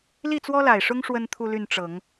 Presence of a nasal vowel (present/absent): absent